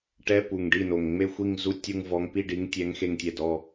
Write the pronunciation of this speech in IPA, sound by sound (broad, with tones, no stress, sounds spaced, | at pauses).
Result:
ʈ ɛ˧˥˧ p u˨˩ ŋ ɖ i˥˩ n o˨˩ ŋ ŋ͡m e˥˧ xʷ i˥˧ ŋ z u˥˧ tʲ u˥˧ ŋ v ɔ˧˥ ŋ p i˥˧ ɖ i˧˥ ŋ tʲ ɛ˧˥ ŋ x e˥˧ ŋ tʲ ɛ˥˩ d ɔ˥˧